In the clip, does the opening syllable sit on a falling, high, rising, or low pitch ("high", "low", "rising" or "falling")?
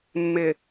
low